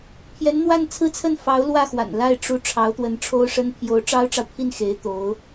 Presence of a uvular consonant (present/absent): absent